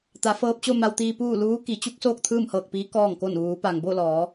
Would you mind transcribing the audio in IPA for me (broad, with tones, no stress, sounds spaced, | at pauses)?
t̪ a˩˧ f ɤː˧ p̚ t͡ɕ o˥˨ m a˧ w t̪ iː˧ p uː˥˨ l uː˧˥ k i˩˧ t͡ɕ u˧˥ k̚ s oː˥˨ k̚ t̪ʰ ɯː˥˨ m h ɤː˧˩ k̚ p iː˧˥ k ɔː˥˨ ŋ k o˥˨ n ʋ uː˩˧ p a˩ ŋ b o˥˨ l ɔː˩˧